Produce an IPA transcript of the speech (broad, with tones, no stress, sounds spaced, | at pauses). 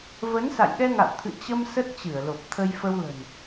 v ə˨˦ n s a̰˧˨ j ɗ ɛ˧ ŋ a̰˧˨ w t̪ʰ ɨ̰˧˨ t͡ɕ ə˧ m s ə˦˥ t̚ t͡ɕ ɨ˧˩ ə̯ l o˨˩ p̚ t̪ʰ ə˧ j f ə˧ w l ə̤˨˩ n